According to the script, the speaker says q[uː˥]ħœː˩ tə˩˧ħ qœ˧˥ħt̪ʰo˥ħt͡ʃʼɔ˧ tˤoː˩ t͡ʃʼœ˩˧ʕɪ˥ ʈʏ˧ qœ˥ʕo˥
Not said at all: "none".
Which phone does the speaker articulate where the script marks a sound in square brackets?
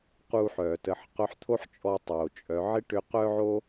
uː˧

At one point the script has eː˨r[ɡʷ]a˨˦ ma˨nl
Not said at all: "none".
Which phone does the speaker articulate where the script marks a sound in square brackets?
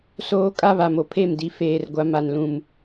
ɡʷ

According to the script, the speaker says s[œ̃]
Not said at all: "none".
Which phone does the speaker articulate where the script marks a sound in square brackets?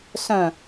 œ̃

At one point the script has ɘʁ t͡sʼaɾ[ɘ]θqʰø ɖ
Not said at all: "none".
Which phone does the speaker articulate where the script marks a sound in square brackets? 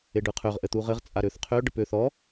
ø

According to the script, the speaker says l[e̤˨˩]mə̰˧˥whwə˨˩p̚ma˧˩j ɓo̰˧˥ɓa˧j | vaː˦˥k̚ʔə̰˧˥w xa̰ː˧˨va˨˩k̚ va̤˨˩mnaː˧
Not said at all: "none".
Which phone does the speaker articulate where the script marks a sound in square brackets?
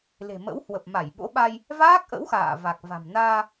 e̤˨˩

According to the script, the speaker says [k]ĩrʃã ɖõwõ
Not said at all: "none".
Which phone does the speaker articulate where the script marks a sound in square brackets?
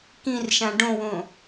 k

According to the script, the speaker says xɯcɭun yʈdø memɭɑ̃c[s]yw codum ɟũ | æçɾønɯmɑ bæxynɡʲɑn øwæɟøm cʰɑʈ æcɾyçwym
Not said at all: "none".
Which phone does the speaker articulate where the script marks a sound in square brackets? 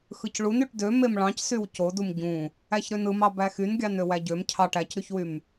s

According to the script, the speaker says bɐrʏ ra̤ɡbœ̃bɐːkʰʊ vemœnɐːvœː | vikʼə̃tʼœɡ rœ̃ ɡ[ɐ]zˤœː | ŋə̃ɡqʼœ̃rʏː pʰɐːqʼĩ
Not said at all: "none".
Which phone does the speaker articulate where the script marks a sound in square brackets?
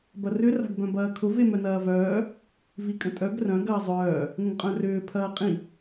ɐː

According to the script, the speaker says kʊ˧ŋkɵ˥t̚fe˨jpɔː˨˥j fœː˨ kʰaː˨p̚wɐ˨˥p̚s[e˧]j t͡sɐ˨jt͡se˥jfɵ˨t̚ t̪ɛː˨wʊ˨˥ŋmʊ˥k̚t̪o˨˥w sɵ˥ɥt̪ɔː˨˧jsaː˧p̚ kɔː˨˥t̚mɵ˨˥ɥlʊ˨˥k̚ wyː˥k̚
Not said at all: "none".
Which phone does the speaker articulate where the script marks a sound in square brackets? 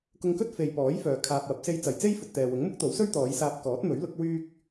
e˧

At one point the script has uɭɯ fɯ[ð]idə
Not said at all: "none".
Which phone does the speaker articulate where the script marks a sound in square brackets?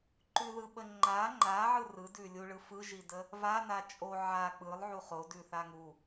ʒ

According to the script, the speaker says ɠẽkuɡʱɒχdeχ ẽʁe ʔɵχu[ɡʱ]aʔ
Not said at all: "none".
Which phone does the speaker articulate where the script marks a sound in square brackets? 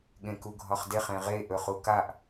k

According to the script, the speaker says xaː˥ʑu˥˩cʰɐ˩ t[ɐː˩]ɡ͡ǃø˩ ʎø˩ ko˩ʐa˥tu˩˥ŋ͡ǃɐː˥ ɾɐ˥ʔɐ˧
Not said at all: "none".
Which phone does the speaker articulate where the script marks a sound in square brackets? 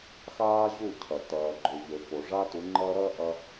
ɐː˩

